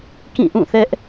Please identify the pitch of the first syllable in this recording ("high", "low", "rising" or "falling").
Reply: falling